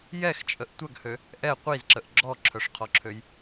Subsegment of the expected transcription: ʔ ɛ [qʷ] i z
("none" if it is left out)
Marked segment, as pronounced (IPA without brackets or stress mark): qʷ